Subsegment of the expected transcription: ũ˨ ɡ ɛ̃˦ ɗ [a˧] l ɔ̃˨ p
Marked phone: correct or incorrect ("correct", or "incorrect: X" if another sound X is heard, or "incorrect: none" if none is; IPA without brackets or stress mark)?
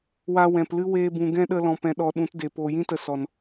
incorrect: ə˧